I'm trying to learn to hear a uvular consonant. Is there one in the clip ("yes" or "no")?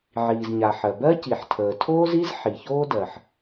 no